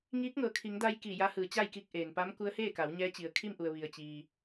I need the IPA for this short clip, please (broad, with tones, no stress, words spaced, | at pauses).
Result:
ŋiː˧˥k̚ŋɤː˩kʰi˩˧ŋda˧j kiː˧˩ja˧˥hɯː˩˧t͡ɕa˥˨j ki˧k̚ ʔeː˩npa˧˥m ku˧˥ə̯heː˥˨ka˩˧w ɲɛː˧˥t͡ɕi˩ə̯ kʰi˥˨mʔu˩ə̯ ʋi˩ə̯t͡ɕiː˩